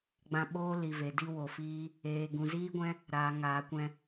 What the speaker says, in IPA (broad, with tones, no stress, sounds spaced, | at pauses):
ɡ͡b ã˧ ɓ oː˦ l i˨ v e˨ d i˦ w o˨ f iː˦ | eː˨ ɡ ũ˨ z iː˦ ɡʷ ɛ̃˦ | ɾ aː˨ ŋ aː˨ kʷ ɛ̃˧